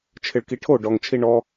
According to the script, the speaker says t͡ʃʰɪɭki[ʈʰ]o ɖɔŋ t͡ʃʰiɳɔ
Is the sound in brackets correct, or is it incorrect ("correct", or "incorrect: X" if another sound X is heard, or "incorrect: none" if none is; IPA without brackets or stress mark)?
correct